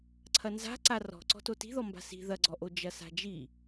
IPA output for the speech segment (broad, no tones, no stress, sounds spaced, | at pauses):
ǀʰ ɐ n z a̤ ǀ a r ɔ̤ ǀ ɔ̤ t o t i̤ ð ɔ m b a̤ s i̤ ð ɐ ɡ͡ǀ ɔ ʔ o d͡ʒ ɐ s a̤ d͡ʒ i